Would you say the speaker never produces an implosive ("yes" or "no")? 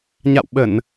no